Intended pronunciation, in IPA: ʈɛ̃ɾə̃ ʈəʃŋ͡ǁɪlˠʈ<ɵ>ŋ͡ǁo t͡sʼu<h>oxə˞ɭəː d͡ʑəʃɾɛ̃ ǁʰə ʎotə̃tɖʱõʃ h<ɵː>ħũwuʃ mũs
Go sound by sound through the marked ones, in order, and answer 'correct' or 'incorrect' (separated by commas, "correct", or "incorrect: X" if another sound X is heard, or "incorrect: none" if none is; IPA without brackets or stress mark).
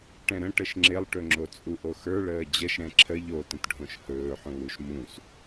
correct, incorrect: ʔ, correct